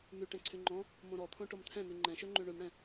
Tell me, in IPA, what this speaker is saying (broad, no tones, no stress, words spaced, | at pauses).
my ʈɛ̃ǀʰyŋ͡ǃɔ̃ | mõɾɔt̪ʰõ ʈomt̪ʰɛ̃n̪y ŋ͡ǃɛ̃ʃøŋ͡ǃy ɳʉmɽɛ̃